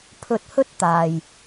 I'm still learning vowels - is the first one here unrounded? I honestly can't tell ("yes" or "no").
no